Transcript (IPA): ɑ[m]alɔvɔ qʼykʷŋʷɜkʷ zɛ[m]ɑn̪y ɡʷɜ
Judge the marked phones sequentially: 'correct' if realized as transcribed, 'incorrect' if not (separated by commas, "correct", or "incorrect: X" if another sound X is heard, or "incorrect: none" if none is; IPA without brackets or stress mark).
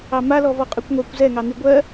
correct, incorrect: ŋ